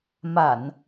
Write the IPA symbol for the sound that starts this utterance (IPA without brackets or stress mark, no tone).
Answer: m